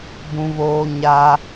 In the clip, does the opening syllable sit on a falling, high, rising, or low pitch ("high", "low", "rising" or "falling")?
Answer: high